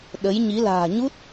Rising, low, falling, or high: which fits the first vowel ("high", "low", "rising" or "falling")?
rising